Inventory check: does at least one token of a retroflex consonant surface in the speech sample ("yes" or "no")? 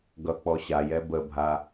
no